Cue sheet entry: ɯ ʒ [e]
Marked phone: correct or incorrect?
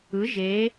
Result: correct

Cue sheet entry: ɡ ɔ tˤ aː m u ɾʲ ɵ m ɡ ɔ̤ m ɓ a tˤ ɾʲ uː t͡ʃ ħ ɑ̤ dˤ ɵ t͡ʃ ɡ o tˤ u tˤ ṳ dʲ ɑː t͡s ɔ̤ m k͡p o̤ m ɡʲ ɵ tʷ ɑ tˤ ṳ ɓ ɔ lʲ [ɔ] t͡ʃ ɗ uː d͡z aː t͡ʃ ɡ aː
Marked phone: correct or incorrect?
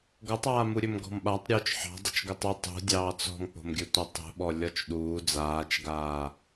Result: correct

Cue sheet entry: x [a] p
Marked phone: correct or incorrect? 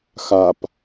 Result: correct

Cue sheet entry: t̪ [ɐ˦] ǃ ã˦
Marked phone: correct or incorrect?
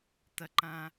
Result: correct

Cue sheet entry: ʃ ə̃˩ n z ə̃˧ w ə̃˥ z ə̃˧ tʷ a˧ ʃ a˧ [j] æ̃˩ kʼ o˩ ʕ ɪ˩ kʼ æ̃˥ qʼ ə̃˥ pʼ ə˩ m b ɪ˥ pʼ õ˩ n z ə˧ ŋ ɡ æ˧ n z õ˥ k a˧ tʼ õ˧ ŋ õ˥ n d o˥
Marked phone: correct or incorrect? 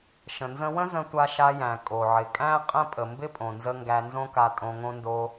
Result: correct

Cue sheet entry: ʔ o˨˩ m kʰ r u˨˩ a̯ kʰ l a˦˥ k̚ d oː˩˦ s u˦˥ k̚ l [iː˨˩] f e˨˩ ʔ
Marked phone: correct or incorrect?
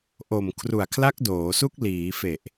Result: incorrect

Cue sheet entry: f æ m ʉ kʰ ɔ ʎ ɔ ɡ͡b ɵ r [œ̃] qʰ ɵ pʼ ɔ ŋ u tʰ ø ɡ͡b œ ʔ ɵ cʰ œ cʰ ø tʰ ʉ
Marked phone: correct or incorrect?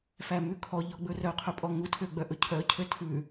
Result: incorrect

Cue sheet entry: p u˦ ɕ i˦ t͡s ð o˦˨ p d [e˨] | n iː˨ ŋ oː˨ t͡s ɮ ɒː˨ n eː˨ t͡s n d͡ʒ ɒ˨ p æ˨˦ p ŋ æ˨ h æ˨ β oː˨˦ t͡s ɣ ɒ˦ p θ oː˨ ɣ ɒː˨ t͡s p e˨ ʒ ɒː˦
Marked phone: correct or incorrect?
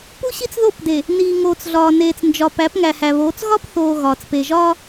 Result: correct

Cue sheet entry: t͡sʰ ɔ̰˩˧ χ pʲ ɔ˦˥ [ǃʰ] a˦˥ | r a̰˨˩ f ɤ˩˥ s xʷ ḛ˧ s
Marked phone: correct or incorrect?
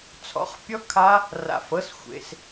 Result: incorrect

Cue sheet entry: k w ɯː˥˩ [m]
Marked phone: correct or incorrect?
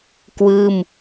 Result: correct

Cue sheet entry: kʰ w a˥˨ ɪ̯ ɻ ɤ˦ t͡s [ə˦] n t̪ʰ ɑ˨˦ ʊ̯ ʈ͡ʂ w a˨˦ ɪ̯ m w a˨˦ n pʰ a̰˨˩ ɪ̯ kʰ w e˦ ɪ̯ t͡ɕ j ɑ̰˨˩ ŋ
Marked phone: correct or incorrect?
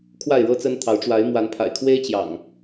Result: correct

